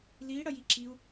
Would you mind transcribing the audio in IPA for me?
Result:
l i ɽ ɐ j i ǁ i u̯

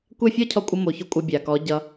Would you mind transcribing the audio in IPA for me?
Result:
kʷ ɛ˦˨ fʲ ɔ˦ cʰ ɔ˧ kʷʼ ʌ˧ m o˨ ç ɔ˧ kʷʼ ʌ˧ bʲ a˨ k ɔ˨˦ ɟ ʌ˧

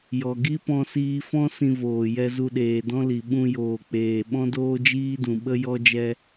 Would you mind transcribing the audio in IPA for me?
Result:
j ɔ˨ ɡ i˦ p ɔ̃˧ s iː˧ f ɔ̃˦ s ĩ˧ v oː˨ j ɛ˧ z u˧ ɗ eː˨ d ɔ̃˦ l i˨ ɓ ũ˧ j oː˨ k͡p eː˨ ɓ ɔ̃˦ d oː˦ d͡ʒ iː˦ d ũ˨ ɓ ə˦ j ɔ˦ d͡ʒ ɛ˦

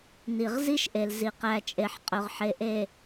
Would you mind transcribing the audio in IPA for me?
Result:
n i˨ ʁ z i˦ ʃ ʔ e˨ l z i˨ q æ˨ t͡ʃʼ e˨ ħ qʼ ɵ˨ ʁ ħ e˨ ʔ e˨

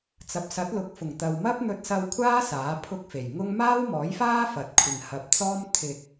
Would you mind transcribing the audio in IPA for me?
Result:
t͡s ɐ˨ p̚ s ɐ˨˥ t̚ l ʊ˨˥ k̚ f ʊ˨˩ ŋ t̪ ɐ˨ w m ɐ˥ p̚ n̪ ɵ˧ t̚ s ɐ˧ w kʷʰ aː˥ s aː˨˥ pʰ ʊ˥ k̚ f e˨˩ j ŋ ʊ˥ ŋ m aː˥ w m ɔː˨˥ j f aː˥ f ɐ˨ t̚ kʷʰ ɪ˨ ŋ h ɐ˨ p̚ t͡s ɔː˥ m t̪ʰ ɪ˧ k̚

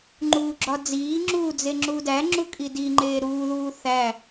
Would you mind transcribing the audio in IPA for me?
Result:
ŋ͡ǃ uː ɡ͡ǁ ɒ d͡z iː ŋ͡ǁ uː d͡z e ŋ͡ǁ u d æ ŋ͡ǁ u kʼ i d i ŋ͡ǃ eː ɾ uː ð uː θ æ

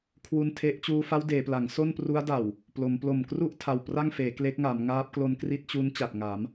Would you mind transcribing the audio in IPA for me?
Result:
kʰ w u˧ n tʰ e˦˥ ʔ t͡ɕ uː˧ f a˦˥ w d eː˩˦ p l a˩˦ ŋ s o˥˩ n p r u˦˥ a̯ d a˨˩ w | p l o˩˦ m p l o˨˩ m k r u˥˩ ʔ tʰ a˨˩ w p r a˥˩ ŋ f eː˩˦ k l e˦˥ k̚ ŋ a˩˦ m ŋ aː˦˥ p̚ k l o˦˥ n k r i˦˥ t̚ t͡ɕ u˦˥ n t͡ɕ a˨˩ t̚ ŋ a˩˦ m

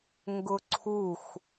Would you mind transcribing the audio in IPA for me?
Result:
ŋ ɡ ʊ ǀʰ u x

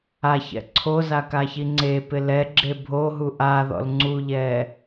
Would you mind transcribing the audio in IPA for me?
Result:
a ç ɛ̰ ǀʰ o z a k a ç i ŋ͡ǀ e p ɪ l ɛ ɡ͡ǁ e bʱ o ɦ u ʔ a ð ɔ̰ l ŋ͡ǀ u ʎ ɛː

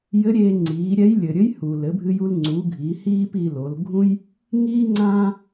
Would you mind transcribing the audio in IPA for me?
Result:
j ɘ˧˥ ɾʲ eː˧ ŋ͡ǀ iː˩˧ ɾʲ ɛ˧˥ j lʲ ɘ˩ ɾʲ ɘ˧˥ j h u˩ l ɘ˩˧ bʱ ɨ˧ j u˧ l ŋ͡ǀ u˩˧ ɡʱ i˩˧ h iː˥ p i˧ l o˩˧ l ɡʱ ũ˥ j | ŋ iː˥ ŋ͡ǀ ã˥

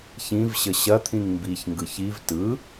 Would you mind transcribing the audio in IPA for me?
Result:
ç ĩ v ɕ ə ɕ ɐ t̪ʰ ĩ ŋ m b i ç ŋ ɡ ɯ ç i v t ɯ

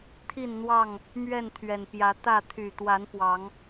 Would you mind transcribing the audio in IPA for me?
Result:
t̪ʰ i˥˨ n n̪ w ɑ˥˨ ŋ | m ɥ ɛ˥˨ n t̪ʰ ɥ ɛ˨˩ n p j ä˨˦ t̪ ä˥˨ t̪ʰ y˨˩ t̪ w a˨˦ n p w ɑ˨˦ ŋ

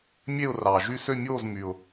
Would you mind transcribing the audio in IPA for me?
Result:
mʲ e˥˧ ʊ̯ r ɑ˩ ʒ y˥˧ s ø˥˧ mʲ oː˥˧ z m y˩ ʊ̯

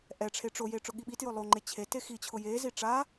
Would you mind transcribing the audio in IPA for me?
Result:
ʔ ɛ ʈ͡ʂʰ e ʈ͡ʂ o j e ʈ͡ʂ ʊ ɠ i ɓ i t j ʊ lˠ o ŋ͡ǃ e t͡ɕʰ e t e x i t͡ɕʰ ʊ j e z i ʈ͡ʂ a

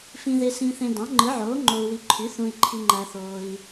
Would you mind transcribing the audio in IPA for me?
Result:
f ĩ˨ ð e˨ s ĩ˨ θ ẽ˨ d ɑ̃˩˥ ŋ͡ǃ ɯ˩˥ ʕ oː˩˥ ŋ͡ǃ o˨ u̯ w i˨ ǃʰ y˩˥ θ ũ˨ i̯ ǃʰ i˨ ŋ͡ǃ æ˨ θ oː˨ i̯

